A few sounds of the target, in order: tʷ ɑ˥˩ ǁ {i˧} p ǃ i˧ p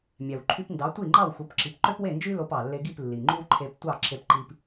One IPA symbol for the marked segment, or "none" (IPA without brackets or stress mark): e˧